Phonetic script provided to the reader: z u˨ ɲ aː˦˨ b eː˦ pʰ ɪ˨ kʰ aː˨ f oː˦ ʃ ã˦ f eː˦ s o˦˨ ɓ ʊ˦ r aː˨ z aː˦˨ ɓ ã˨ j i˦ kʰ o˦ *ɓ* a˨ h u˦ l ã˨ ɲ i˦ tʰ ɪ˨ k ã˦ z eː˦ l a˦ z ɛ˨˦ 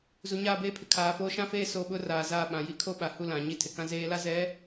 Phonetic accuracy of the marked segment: correct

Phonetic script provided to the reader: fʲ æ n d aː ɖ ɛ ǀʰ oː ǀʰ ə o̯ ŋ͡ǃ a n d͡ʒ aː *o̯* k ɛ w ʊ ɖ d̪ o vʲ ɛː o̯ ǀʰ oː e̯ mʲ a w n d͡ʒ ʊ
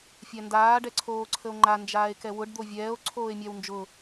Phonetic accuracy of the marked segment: incorrect: e̯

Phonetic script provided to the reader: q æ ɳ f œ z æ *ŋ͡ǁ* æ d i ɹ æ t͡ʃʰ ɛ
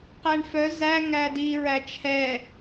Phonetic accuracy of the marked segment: incorrect: ŋ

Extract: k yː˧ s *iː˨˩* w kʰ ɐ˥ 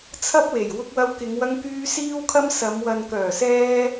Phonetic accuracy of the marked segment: incorrect: iː˥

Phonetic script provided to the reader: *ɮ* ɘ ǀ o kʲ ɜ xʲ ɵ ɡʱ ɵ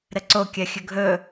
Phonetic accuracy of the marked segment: incorrect: ɾ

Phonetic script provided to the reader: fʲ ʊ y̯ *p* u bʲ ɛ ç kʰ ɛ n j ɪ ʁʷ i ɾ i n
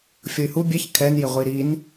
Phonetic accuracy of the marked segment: incorrect: h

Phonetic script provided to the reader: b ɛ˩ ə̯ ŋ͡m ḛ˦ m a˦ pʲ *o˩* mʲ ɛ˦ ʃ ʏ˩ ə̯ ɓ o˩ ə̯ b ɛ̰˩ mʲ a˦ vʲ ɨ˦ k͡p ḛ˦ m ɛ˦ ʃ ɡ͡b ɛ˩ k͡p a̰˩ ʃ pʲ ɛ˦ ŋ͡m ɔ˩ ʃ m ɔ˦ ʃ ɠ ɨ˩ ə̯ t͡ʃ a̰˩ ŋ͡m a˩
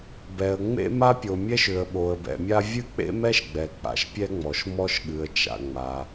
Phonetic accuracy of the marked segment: correct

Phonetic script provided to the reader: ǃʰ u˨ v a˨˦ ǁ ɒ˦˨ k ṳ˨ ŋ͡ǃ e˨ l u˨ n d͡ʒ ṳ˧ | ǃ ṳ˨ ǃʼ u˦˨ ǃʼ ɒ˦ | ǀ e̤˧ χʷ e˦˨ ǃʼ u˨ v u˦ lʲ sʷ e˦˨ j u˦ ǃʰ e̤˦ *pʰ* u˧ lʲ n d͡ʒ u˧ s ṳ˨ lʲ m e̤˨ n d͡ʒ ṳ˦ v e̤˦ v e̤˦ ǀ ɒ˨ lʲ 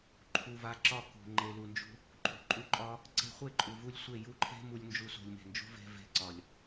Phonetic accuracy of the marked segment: incorrect: m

